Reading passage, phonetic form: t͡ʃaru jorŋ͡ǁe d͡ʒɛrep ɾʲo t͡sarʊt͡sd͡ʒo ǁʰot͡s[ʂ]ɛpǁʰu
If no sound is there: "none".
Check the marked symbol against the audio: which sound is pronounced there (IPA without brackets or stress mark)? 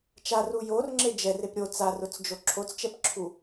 t͡ʃ